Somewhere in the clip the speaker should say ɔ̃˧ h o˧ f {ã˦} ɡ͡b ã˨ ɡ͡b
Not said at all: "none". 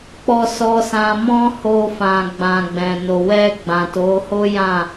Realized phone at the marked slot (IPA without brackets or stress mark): ã˨